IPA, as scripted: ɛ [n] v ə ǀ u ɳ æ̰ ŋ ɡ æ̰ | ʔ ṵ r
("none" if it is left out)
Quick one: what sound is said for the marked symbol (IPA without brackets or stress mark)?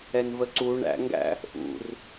n